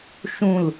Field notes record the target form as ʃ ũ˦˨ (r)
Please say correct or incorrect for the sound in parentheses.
incorrect